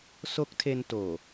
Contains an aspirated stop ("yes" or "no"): yes